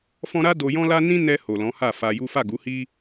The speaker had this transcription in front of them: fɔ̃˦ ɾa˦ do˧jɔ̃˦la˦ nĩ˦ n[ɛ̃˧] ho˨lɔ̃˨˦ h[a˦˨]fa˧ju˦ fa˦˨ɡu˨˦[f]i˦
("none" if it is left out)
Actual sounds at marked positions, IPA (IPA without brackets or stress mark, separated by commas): ɛ˧, a˦˨, h